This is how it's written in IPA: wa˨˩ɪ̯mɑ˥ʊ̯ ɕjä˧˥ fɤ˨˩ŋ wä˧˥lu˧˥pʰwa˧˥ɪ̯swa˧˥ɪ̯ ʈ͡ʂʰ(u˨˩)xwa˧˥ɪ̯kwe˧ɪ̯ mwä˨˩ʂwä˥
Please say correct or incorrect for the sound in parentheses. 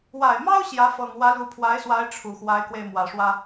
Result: correct